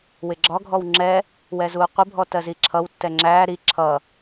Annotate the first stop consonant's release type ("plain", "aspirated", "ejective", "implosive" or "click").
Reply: click